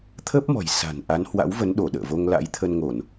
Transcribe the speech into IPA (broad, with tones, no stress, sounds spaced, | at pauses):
t̪ʰ ə˦˥ p̚ m ɔ̤˨˩ j s a̤˨˩ n ʔ a˨˦ n h w a̰˧˥ w v ə˨˦ n ɗ o˧˩ ɗ ə̰ː˧˨ v o˧ ŋ l a̰˧˥ j t̪ʰ ə˧ n ŋ o˧˩˨ n